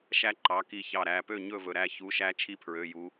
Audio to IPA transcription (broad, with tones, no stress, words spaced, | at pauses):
ʃæ˦ǃɑ˩˧˩ ki˧˩çɑ˧˩ɾæ˩˧˩ pø˥˨ ɲɵ˥˨vɵ˧˩ ɾæ˧˩çu˩˧˩ ʃæ˦t͡ʃʰi˦pʰɹø˩˧˩ ju˨˥